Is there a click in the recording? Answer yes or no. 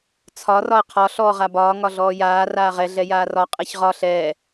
no